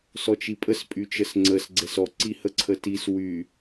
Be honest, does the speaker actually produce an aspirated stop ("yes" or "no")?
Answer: yes